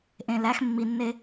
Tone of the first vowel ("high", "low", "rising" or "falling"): low